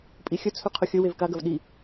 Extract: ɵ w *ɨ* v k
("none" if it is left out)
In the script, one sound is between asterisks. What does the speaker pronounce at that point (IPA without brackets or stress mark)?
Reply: e